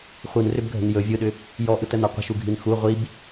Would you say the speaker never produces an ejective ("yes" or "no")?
yes